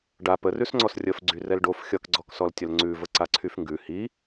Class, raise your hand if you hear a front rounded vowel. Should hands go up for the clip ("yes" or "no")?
yes